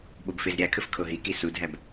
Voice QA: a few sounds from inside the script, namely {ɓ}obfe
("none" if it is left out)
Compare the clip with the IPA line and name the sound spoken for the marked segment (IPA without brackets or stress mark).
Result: ɓ